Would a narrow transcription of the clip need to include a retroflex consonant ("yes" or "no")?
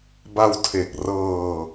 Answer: no